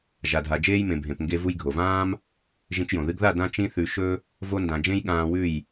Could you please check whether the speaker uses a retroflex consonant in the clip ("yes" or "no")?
no